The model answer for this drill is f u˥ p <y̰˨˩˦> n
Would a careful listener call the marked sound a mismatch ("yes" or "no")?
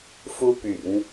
no